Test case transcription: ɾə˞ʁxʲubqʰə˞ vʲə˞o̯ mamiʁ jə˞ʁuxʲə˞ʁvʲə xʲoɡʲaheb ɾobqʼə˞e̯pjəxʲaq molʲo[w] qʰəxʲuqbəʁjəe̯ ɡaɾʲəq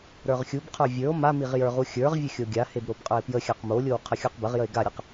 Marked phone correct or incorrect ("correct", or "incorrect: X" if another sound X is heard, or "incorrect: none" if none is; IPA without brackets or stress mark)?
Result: correct